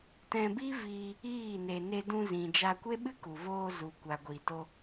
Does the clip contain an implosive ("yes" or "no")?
yes